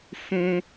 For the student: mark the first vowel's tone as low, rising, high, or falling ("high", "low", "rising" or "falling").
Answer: high